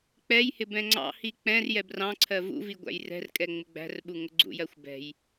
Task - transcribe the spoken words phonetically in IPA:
k͡pɛjhɪb ɛ̃ŋ͡ǀɑ̰hi k͡pɛ̃r jɛbrɑ̃ǀʰɜ vṵvi ɡʷæ̰jrɛ̤rkʼɛ ŋ͡mɪɡ͡bæ̤rɓu ŋʊɡ͡ǀṵjɜxʷ bɛ̤j

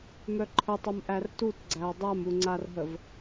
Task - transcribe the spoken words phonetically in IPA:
mœǃʰətˤəm ʔærtutɡ͡ǀæɐ̯ dˤamuŋ͡ǀarɦəv

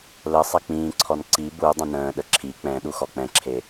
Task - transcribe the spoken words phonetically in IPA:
lə sˤɛk͡pĩːǀʰɔn ǀi bu dˤə̃nə̃ːɗə ǁʰi k͡pɛ̃ ɗuxɔk͡pɛ̃ǁʰe

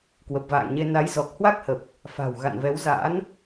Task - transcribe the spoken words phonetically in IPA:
kwə˨˩p̚va̰ː˧˨ŋɲe˧ na˨˦j zɔ˨˩k̚hwa˦˥k̚hə˨˩p̚ | fa̤˨˩w ɣa̰˧˨nvɛ˨˦w za̰ː˧˥n

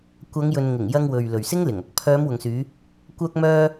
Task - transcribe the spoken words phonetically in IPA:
kʷɐ˨˧ŋjɵ˨nŋɪ˨˩ŋ jɐ˧ŋwɵ˨ɥ lɵ˨ɥsɪ˥ŋlɪ˨˩ŋ ɐ˨˥k̚ pʰœː˨˧m wʊ˨ŋsyː˨˧ | kʷœː˧k̚mœː˧

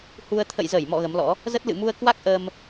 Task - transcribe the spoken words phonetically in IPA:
hu˧ə̯ t̪ʰə̰˧˨jzə˧˩jmɔ̰˧˨ ɣə˨˦mlɔ̰˧˥ | zə˦˥t̚lɨ̰˧˨mu˧ə̯ kwa˦˥k̚ʔəː˧m

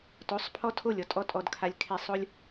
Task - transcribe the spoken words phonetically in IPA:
to˨˦sˤpʰɔ˦tʰo˦˨lʲɔ˧ tʼɔ˦tʼɔ˧dkʰa˧lʲ kʰe˧sˤo˦lʲ

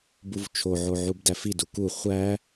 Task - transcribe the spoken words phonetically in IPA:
buvt͡ʃʰoʕo ʕubdæfidu ku χʷæ

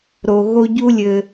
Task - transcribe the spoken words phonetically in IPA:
ɾo˧ɣo˦ ɟu˦lʲɘ˧

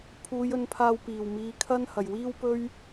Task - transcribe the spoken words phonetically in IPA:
pʰuː˨˧jɵ˨˧n pʰaː˧wpiː˨˩w miː˨˥kʰɐ˥n hɐ˨˩jwiː˥w pɵ˥ɥ

